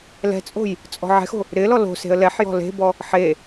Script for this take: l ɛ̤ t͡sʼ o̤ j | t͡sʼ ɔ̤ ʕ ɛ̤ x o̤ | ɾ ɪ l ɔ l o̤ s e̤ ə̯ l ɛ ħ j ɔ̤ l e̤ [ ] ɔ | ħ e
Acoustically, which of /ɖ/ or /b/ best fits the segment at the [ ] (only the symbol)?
b